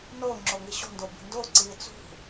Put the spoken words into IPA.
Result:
n oː ŋ͡ǁ o ŋ i ɕ o̤ n d o b i̤ n d o ǀ iː t͡s ṳ

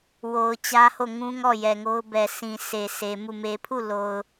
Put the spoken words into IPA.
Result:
w o˨ ʊ̯ t͡ɕ ä˦ h o˦˨ ŋ ũ˦ ŋ ɔ˦˨ j ɛ˨ ŋ o˦ ʊ̯ b ɛ˨ sʰ ĩ˨ sʰ e˨ s e˨ m u˦˨ m e˨ pʰ u˦˨ l o˨ ʊ̯

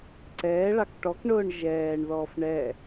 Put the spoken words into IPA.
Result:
ǀ ɛː ɭ ɑ k ʈ ɔ k ɳ ʊː ɳ ʒ ɛː ɳ ð ɔː f ɳ ɛ

